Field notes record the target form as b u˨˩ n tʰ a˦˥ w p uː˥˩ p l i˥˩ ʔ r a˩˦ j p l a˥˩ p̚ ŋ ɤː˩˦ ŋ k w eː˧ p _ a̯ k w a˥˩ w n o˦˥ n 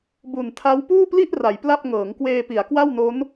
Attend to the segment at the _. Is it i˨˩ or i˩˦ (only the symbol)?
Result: i˩˦